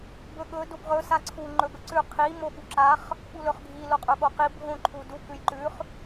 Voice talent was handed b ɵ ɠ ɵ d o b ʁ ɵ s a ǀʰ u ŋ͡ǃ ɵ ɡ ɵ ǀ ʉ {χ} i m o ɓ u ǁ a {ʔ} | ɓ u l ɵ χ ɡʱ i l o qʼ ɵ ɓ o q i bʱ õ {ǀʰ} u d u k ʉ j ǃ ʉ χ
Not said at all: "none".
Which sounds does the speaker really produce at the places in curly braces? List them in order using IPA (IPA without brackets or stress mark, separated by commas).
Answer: qʰ, χ, ǃʰ